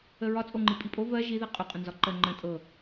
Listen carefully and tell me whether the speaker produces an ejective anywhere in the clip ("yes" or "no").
yes